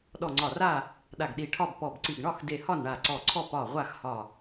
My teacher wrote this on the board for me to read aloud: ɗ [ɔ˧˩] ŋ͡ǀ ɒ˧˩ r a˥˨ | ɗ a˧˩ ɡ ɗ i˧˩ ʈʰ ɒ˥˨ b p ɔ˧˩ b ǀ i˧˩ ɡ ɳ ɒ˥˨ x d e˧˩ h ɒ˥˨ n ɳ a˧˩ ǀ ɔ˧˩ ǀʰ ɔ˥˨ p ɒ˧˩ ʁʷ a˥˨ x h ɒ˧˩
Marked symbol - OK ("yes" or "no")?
yes